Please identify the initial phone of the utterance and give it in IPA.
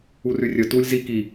u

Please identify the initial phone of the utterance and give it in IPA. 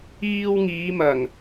iː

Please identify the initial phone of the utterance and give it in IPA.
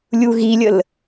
lʲ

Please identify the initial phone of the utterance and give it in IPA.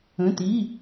ə̃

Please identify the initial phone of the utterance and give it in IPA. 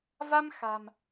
v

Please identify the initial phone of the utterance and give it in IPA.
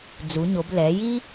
d͡z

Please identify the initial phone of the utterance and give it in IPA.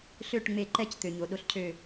ɬ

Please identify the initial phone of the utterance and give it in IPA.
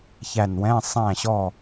ç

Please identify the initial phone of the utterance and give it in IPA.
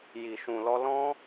j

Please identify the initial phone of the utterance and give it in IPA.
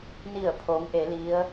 n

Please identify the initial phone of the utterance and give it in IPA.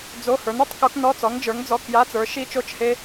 d͡z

